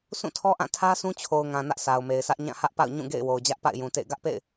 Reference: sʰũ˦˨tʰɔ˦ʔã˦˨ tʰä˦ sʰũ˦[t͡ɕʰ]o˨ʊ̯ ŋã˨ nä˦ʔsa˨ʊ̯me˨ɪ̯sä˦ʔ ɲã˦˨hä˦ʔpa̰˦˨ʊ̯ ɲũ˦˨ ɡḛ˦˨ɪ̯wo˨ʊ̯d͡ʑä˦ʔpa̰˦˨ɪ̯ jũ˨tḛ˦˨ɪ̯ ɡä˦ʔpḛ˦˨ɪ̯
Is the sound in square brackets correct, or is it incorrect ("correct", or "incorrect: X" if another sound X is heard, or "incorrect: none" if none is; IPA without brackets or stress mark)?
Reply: correct